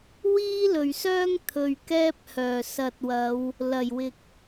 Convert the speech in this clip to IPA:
w iː˥ l ɵ˨ ɥ s œː˥ ŋ t̪ʰ ɵ˧ ɥ k ɛː˥ p̚ h œː˨ s ɐ˨ t̚ w ɐ˨˧ w | l ɐ˨˩ j w ɪ˨ k̚

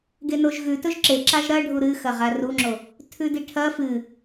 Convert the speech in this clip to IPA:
ɡ e n o ʒ ɣ ʉ t ɵ ʒ ǁ e ǁ a ʒ ɾ ɐ ɖʱ u ɾ ɨ x ɐ ʁ a r u ŋ͡ǁ o | tʰ ʉ d i ʈʰ ɐ f ɨ

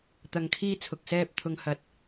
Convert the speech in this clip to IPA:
t̪ ɐ˨ ŋ kʰ iː˧ t͡sʰ ʊ˨ k̚ s ɛː˧ p̚ t̪ʰ ʊ˨ ŋ h ɐ˨ t̚

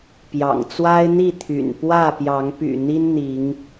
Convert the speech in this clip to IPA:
p j ɑ̰˨˩ ŋ t͡s w a˦ ɪ̯ n̪ i˥˨ t̪ʰ y̰˨˩ n p w ä˥˨ p j ɑ˨˦ ŋ p y̰˨˩ n̪ i˦ n n̪ i˨˦ ŋ

